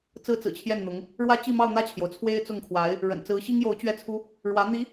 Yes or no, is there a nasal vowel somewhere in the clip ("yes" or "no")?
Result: no